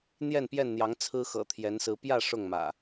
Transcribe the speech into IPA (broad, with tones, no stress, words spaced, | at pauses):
n̪jɛ˥˨npjɛ˥˨nn̪jɑ˨˦ŋ t͡sʰɹ̩˦xɤ̰˨˩t̪ʰjɛ˨˦nsɹ̩˨˦ pjä˥˨ ʂʊ˥˨ŋmä̰˨˩